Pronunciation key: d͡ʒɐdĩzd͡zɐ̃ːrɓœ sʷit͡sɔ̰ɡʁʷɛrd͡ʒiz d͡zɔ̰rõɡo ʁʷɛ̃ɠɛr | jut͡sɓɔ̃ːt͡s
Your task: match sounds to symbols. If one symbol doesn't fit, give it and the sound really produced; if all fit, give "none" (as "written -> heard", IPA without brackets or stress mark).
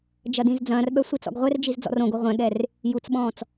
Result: none